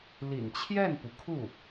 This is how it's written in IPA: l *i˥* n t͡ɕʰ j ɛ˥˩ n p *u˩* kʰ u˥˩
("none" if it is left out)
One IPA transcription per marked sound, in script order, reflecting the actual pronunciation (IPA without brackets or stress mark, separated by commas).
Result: ḭ˨˩, u˩